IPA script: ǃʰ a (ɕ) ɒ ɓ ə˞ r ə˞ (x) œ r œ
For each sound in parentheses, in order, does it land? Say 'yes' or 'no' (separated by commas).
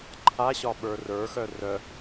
yes, yes